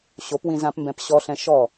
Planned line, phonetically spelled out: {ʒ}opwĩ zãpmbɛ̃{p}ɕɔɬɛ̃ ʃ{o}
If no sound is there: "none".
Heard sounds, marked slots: ɕ, p, ɔ

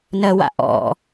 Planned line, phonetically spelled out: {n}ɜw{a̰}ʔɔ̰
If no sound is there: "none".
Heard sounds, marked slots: n, a̰

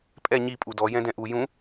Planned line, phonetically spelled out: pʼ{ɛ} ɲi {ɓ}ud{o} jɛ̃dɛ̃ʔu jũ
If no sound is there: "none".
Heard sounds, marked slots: ɛ, pʼ, ɔ

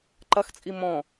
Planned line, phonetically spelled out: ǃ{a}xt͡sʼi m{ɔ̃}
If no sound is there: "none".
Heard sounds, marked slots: ɐ, ɔ̃

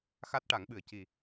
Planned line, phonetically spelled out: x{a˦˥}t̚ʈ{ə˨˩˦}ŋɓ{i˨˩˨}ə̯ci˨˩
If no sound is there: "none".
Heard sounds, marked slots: a˦˥, a˨˩˦, ɨ˨˩˨

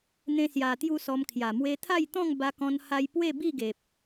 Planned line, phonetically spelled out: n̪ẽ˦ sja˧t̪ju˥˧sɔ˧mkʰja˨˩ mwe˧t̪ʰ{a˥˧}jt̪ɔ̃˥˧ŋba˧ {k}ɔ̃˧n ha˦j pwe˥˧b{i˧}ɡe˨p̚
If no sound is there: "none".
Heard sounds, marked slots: a˥˧, k, i˥˧

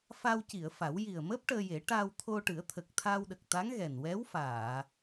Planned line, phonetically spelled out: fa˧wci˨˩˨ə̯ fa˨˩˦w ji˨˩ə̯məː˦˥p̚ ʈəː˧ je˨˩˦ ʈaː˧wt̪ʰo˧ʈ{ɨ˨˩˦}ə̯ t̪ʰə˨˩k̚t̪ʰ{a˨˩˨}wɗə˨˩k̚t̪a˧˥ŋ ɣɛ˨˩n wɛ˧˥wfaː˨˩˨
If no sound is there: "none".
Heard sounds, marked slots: ɨ˨˩˦, a˧

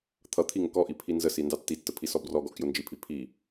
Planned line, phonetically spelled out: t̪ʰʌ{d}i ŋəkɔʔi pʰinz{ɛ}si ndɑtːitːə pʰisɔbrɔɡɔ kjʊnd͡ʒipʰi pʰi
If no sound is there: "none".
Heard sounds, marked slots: t̪ʰ, ə

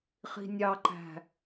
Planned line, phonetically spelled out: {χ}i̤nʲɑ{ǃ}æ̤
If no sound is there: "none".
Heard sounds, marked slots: χ, ǃ

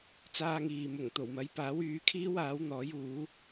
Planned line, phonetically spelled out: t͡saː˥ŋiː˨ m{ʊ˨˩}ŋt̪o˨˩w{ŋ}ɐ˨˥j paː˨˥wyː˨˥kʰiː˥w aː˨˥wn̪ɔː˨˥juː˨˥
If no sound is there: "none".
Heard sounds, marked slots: ʊ˨˩, m

